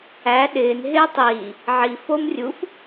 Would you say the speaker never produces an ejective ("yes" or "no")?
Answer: yes